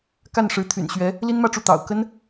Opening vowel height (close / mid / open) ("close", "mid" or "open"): open